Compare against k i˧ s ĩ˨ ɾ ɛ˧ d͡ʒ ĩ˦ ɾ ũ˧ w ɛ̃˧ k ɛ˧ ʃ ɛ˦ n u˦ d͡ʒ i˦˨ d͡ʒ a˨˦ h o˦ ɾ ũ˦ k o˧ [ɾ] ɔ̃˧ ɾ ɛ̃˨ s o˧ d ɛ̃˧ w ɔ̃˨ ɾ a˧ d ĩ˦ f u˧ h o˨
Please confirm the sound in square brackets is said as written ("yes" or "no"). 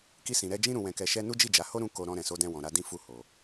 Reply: yes